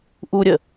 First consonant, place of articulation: glottal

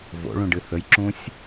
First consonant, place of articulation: labial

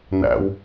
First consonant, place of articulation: alveolar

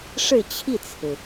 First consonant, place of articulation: retroflex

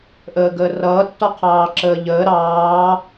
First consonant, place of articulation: glottal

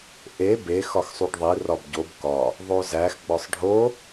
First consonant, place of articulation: glottal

